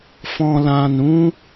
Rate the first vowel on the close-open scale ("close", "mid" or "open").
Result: mid